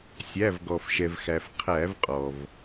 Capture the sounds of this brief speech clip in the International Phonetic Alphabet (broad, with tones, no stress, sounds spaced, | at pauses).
sʲ æ˩˧˩ v ɡ ɔ˩ f ʃ ɛ˩ v x æ˩ f qʰ æ˧˩˧ v qʼ ɔ˩ v